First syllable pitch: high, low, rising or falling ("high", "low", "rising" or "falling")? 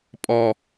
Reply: low